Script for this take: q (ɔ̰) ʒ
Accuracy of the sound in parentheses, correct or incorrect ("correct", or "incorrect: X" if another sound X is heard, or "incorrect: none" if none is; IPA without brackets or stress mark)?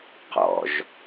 correct